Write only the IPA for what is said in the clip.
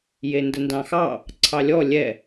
jendəndɑ̃xɑ | ǀʰɑlʲɔ lʲɛ

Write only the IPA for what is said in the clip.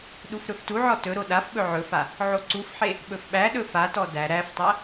ɗufɾɵftuʕɔ tɵɾo ɗafɓɵ ʕɵfa | ʕoǀufħe | ɓɵfɓæɗɵ fatɔ dæ ɾæftˤæ

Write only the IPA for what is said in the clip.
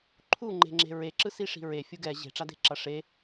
ǃʰuŋ͡ǃe̤ŋ͡ǁe̤ ɹeǁɯsiʂi̤ ɹefʲu ɡɛ ʑe̤ʈ͡ʂade̤ǁʌ ʂe

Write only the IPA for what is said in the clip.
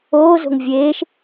oːzo̤ŋ vʲeːʃ

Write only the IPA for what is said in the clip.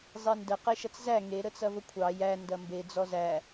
zˤendə qeʃɐt͡szæ ŋe ɾət͡sɐvəkʷʰɑ jæ ndɐmbe d͡zɔzæ

